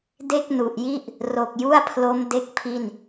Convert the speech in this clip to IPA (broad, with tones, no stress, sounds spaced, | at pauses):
d e˥˩ k̚ n u˨˩ ʔ j i˥˩ ʔ | r o˨˩ k̚ j u˥˩ a̯ pʰ l o˦˥ m d e˦˥ k̚ pʰ i˥˩ n